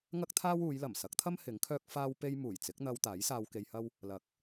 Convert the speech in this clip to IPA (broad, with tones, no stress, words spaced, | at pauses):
ŋɐ˥k̚t̪ʰaː˥wuː˨˧jlɐ˨˩m sɐ˨˥k̚t̪ʰɐ˥m hɪ˨˥ŋkʰœː˥k̚ faː˥wpe˥j muː˨˩jt͡sɪ˨˥k̚n̪ɐ˧w t̪aː˨˥j saː˧wke˧jhɐ˥w | lɐ˨k̚